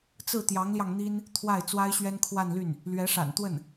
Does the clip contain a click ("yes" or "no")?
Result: no